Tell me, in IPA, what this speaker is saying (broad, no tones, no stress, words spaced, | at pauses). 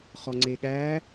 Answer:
χɔŋ͡ǀeɠæ